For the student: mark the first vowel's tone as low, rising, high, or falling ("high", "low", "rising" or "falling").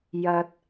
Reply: low